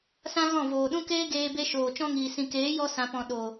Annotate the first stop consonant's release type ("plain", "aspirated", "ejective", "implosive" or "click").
implosive